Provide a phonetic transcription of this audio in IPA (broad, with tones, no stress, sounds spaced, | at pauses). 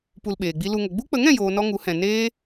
p u˧ l ɓ eː˨ ɡ͡b i˦ l u˧ ŋ ə˨ ɡ͡b u˦ k͡p ə˨˦ ŋ ɛ̃˨ j oː˨ n ɔ˦ ŋ u˨˦ h ɛ̃˨ n eː˦